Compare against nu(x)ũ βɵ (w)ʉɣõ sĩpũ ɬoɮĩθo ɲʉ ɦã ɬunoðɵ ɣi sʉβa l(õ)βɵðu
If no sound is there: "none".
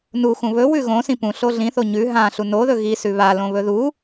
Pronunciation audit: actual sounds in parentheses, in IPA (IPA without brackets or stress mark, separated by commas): x, w, õ